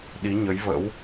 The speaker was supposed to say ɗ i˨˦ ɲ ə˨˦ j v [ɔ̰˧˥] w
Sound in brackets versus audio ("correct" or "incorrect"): incorrect